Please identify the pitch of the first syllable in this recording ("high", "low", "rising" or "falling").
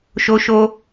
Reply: high